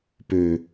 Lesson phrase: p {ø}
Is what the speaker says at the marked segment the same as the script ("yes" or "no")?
yes